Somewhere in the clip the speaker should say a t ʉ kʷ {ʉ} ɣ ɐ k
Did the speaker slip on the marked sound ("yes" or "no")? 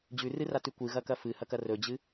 yes